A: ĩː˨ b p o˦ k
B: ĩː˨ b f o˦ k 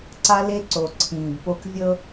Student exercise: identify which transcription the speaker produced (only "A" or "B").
A